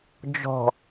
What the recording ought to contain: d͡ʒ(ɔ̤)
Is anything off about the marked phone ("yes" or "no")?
no